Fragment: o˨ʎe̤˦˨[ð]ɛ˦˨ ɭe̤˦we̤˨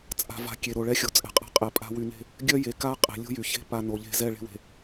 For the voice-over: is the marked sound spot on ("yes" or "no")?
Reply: no